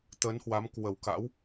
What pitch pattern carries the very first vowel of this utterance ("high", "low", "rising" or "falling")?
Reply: rising